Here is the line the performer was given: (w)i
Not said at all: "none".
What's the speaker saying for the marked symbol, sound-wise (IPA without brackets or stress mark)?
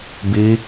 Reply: b